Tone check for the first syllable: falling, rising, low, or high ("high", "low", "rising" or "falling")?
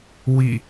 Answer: falling